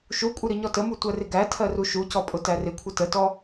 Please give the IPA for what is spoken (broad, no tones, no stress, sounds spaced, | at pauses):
ʃ u kʷʼ ɪ ɾ i ɲ ɔ t ə m u tʷ ɜ r ɪ ɡ æ tʰ ɜ r u ʃ u c ɔ pʼ ʊ t æ r ɪ kʷʰ ə t ə t ɔ